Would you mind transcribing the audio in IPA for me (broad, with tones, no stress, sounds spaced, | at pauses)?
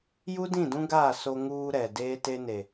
j u˦ d ĩ˦˨ d ũ˦ ɡ aː˦˨ s o˦ ŋ uː˦ ɾ ɛ˨ d eː˦ t e˦ n e˨